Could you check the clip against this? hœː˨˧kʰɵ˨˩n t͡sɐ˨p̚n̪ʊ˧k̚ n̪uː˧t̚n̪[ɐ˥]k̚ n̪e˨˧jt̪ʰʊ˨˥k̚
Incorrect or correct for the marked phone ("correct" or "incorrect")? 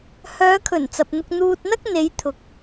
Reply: correct